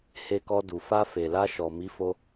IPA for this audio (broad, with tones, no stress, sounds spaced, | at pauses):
h e˧ k ɔ˧ d u˨ f a˧ f e˨ l a˧ ʃ ɔ˨ m i˨˦ f o˧